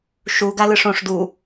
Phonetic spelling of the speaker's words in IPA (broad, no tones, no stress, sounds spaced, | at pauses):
ʃ u ɡ a l ɯ ʂ õ ʂ d u